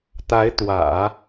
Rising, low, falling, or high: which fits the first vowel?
rising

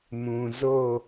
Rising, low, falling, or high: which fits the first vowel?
low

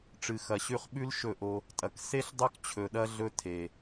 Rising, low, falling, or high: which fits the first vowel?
low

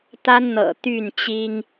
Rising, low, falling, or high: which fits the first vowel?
high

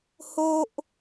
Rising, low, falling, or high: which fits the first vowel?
high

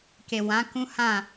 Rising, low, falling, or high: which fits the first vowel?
low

